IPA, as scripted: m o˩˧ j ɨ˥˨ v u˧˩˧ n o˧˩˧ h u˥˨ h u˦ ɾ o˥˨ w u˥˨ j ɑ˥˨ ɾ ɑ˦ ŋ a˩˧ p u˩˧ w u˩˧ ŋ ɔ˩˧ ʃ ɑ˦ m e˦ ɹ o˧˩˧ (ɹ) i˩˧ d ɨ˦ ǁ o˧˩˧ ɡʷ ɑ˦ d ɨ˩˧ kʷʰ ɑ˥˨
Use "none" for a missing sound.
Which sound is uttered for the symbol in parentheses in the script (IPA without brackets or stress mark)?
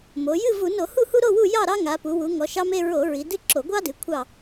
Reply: ɹ